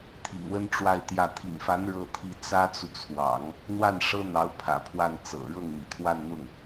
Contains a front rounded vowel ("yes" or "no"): no